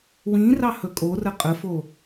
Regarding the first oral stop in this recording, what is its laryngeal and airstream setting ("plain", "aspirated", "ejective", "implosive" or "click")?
ejective